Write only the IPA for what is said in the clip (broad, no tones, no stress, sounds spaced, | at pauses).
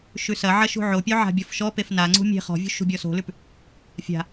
ʃ ʉ s ɐ ʕ ɐ ʃ ṳ ʕ o pʲ ʉ ʕ a̤ bʲ ɔ f ʃ ɔ p e f n a ŋ͡ǀ ṳ mʲ e̤ χ ɔ̤ vʲ ṳ ʃ ṳ bʲ ɔ s o̤ l ʉ p | fʲ a̤